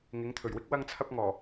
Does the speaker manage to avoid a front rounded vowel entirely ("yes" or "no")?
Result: yes